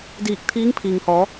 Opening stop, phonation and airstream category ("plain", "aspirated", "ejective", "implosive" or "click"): plain